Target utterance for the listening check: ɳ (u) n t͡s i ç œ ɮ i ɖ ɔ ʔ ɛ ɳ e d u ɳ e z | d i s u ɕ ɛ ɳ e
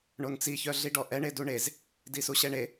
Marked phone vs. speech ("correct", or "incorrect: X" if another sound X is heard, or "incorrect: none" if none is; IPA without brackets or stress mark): incorrect: o